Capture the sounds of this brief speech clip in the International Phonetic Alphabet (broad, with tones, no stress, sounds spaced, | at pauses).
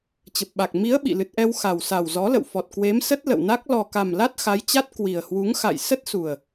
t͡ɕ ə˨˩ p̚ ɓ a˨˩ k̚ m i˨˦ ə̯ ɓ ḭ˧˨ l ɨ˨˩ t̚ ʔ ɛ˧ w x a˨˩ w s a˨˩ w z ɔ˨˦ l ə̰˧˨ w f ɔ˨˩ t̚ k w e˨˦ m s ə˦˥ t̚ l ə̰˧˨ w n a˦˥ k̚ l ɔ˨˩ k a˨˩ m l a˦˥ t̚ x a˨˦ j t͡ɕ a˦˥ t̚ k w i˨˩ ə̯ h w u˨˦ ŋ x a̰˧˨ j s ə˦˥ t̚ s u˨˩ ə̯